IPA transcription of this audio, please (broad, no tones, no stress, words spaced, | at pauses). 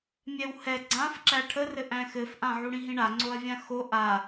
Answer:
mʲɛwhɛ ɡ͡ǀãfǁæ ʈʰərɘ ʔæ̃xɘfʔã ʕuɽĩɦĩɳa ŋ͡ǀoɐ̯vʲãxo ʔa